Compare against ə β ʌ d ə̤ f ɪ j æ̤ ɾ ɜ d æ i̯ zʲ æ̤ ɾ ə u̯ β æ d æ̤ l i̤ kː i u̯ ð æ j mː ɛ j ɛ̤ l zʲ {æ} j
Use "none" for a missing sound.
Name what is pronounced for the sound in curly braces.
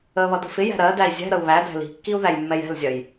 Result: ɜ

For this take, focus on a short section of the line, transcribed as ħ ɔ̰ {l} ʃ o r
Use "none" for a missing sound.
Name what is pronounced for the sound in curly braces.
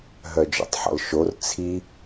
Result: l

